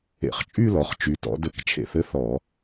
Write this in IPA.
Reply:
ḛ˧˩˧ χ t͡ʃʼ y˥˧ l ɔ˩˧ χ t͡ʃ y˩˧ t ɔ̰˩˧ d ɘ˧˩˧ k t͡ʃʰ ḛ˧˩˧ θ ɘ˥˧ θ ɔ˧˩˧

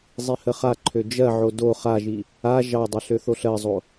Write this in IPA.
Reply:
zˤ i h ə χ a ǃʰ ø d͡ʒ ɜ ʕ o d o χ a ʒ i | a ʒ ɑ dˤ ə ɬ ø θ o ɬ ɜ zˤ o

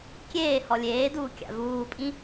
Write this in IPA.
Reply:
kʲ eː h ɔ lʲ eː d uː kʲ a̰ v uː pʼ ĩ

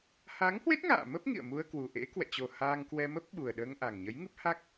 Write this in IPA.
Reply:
h a˨˦ ŋ h w e˦˥ t̚ ŋ a̰ː˧˨ m ə˦˥ p̚ ŋ ḭ˧˨ ə̯ m u˧ ə̯ k w u˨˩ ʔ ḛ˧˥ k w ɛ̰˧˨ t͡ɕ o˨˩ h aː˧ ŋ k w ɛ˧ m ə˦˥ p̚ ɓ u˨˩ ə̯ ɗ əː˧ ŋ ʔ a˨˩ ŋ ɲ ə˨˦ j ŋ ɨ˦˥ p̚ h a˦˥ k̚

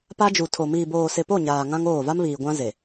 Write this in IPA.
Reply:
p a˦ d͡ʒ u˨ tʰ o˨ m iː˨ b oː˨ s ɪ˨ p o˦˨ ɲ aː˨ ŋ ã˦ ŋ oː˦˨ v a˦ m β iː˨ ɡʷ ã˦ z e˨

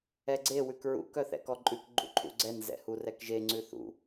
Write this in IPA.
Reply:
ɛ ɡ͡ǀ e w ʉ k ɹ ṵ k œ θ ɛ̰ k ɔ ǃʼ ʉ k ɡ͡ǃ ṵ ǃʰ ṵ ɡ͡ǀ ɛ n z ɛ̰ h u r ɛ k ʒ e ŋ͡ǀ ʉ θ ṵ

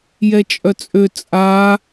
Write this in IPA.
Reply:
j ɛ t͡ʃʼ œ t͡sʼ ø t͡sʼ a

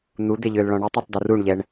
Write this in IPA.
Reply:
n̪ u d̪ e ʎ øː l ɭ ɔ̃ ɳ ɛ tˤ ɛ tˤ d o r u ɳ ʎ ɛ ɳ

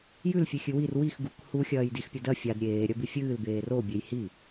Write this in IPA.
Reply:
j ʉ l fʲ ʉ xʲ ɨ w i r w i x ɡ u k h u xʲ ɐː j d i x pʲ ɐ d ɐ fʲ a d ɾʲ eː ɾʲ ɐ b i fʲ ɨː l b eː r o bʲ e j h i

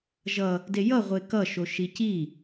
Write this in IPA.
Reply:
ʒ ʌ | d e j ʌ ʁʷ e k ʌ ʃ o ʃ i c i

